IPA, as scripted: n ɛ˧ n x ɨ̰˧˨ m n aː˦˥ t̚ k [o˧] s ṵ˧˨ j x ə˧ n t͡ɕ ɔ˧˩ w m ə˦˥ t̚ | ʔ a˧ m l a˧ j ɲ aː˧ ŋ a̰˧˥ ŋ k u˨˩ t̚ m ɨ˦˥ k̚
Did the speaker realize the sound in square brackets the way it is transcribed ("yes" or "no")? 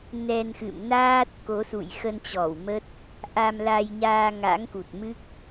no